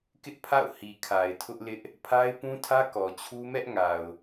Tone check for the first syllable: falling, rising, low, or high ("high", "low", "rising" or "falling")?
high